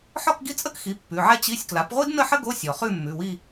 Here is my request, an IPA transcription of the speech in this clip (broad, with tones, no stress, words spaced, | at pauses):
ħɔ˥˧kɡi˥˧t͡sʼə˥kxi˩˥ pːʉ˩˧˩ʕɛ˥ t͡ɕi˧˥˧sʲ kla˩˥pʁʷi˥dnə˥˧ħə˥ ɡo˧˥˧ sʲɔ˩χʉ˥˧ mːʉ˩˧˩wi˥˧